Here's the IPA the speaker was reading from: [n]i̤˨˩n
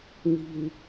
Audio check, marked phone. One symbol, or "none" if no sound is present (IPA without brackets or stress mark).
n